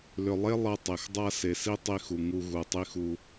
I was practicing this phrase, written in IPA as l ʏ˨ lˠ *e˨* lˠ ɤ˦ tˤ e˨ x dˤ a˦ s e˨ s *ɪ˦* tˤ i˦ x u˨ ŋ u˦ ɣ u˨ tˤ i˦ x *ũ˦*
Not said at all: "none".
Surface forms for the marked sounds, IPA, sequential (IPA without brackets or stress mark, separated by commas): e˦, i˦, u˦